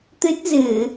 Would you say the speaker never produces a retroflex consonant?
yes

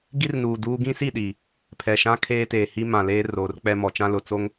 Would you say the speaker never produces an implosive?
no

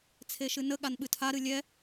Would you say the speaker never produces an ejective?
yes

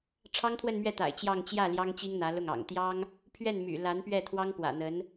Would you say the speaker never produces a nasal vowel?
yes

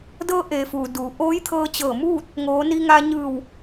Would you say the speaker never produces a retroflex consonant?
yes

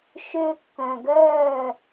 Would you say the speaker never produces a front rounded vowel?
no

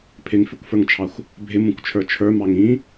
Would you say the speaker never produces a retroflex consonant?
yes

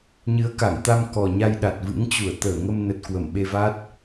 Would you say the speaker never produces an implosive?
no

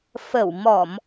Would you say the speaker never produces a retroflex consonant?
yes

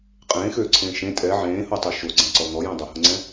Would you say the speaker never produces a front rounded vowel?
no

